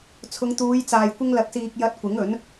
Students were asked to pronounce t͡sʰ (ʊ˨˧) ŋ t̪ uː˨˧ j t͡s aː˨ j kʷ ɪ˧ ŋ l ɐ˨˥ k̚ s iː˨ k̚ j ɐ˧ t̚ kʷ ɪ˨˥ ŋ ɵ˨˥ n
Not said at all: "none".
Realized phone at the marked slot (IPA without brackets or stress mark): ʊ˨˧